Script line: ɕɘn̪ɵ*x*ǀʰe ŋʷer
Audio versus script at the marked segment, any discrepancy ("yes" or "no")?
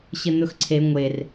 no